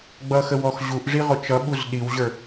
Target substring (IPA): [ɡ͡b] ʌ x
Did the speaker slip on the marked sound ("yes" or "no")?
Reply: no